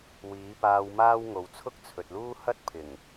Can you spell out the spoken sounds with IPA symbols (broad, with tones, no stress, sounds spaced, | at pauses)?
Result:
w iː˨˥ p aː˧ w m aː˥ w ŋ o˨˧ w t͡sʰ ʊ˥ k̚ t͡sʰ ɵ˨ t̚ l uː˥ h ɐ˥ t̚ pʰ ɪ˨˩ ŋ